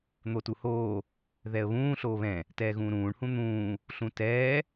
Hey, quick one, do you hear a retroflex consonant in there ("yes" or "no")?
yes